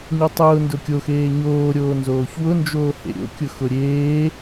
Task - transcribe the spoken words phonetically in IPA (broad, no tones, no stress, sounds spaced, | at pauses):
ɲ o tˤ ʊː n d ʊ kʲ o x eː ɲ oː ɾʲ oː n z oː ç w ʊ n d͡ʒ oː h ḛ ɾʲ o̰ kʲ ʊ x ʊ ɾʲ eː